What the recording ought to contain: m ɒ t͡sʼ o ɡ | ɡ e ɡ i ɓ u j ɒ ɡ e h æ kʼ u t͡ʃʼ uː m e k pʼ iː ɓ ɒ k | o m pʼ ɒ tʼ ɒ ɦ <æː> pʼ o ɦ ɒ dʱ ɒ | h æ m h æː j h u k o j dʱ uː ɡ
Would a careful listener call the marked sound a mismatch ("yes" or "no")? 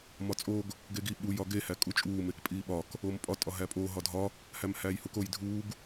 yes